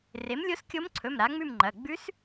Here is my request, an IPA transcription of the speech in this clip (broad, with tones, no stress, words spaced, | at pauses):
re˩˥mlʲo˧˥skʲo˧˥mǀʰɵ˩˧˩m ɾa˩˥ŋ͡mʉ˥˨mŋ͡ǃɐ˩˧˩ ɡ͡bʉ˧˥s